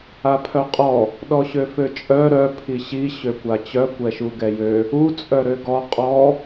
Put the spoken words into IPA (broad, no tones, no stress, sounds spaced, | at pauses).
a pʰ œ qʼ ɔ | ɗ ɔ ɕ ø f ø t͡ʃʼ œ ɾ œ pʰ i ɕ i ɕ ø kʷ a t͡ɕ œ kʷ ɛ ʃ u ɡ ɛ j ø | u t͡sʼ œ ɾ ø ɡ ɔ qʼ ɔ